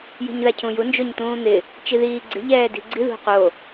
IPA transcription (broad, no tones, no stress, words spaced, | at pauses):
ji̤ɲðacʰũju nd͡ʒoɲt̪ũːn̪ɪ | t͡ʃiðiːɡ͡ǀɪ ʎɛːdi̤ɡ͡ǀi ðṳqo